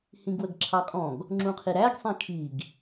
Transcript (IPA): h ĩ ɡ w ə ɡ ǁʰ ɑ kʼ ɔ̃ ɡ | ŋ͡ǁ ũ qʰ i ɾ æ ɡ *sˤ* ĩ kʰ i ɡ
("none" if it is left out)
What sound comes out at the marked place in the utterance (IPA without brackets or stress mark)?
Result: sˤ